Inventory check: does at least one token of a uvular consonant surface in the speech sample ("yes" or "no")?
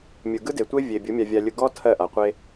yes